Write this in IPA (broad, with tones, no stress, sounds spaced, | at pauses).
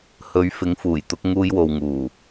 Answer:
h ɵ˨˥ ɥ f ɪ˨˥ ŋ f uː˨˩ j t̪ ʊ˨˥ k̚ ŋ uː˧ j w o˨ w ŋ uː˨˩